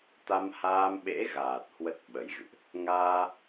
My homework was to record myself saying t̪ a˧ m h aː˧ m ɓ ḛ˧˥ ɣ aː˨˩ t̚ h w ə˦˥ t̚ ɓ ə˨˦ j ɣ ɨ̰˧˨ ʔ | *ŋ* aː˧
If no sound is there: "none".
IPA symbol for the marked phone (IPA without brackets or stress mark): ŋ